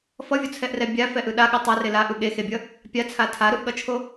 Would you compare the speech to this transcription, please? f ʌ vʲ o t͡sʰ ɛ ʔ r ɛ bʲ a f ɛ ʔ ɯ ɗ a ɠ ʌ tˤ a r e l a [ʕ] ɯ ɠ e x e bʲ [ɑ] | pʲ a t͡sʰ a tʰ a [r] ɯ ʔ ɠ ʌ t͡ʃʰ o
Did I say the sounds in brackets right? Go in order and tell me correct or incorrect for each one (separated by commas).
incorrect, incorrect, incorrect